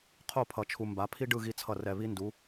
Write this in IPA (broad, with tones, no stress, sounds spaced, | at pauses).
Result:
qʰ o˦˨ pʰ ʌ˨ t͡ʃʰ u˨ m b a˨˦ pʰ i˦ ɖ ɯ˦˨ ɣ i˦ t͡sʰ ʌ˦˨ r ɛ˦˨ β i˦ n d u˨˦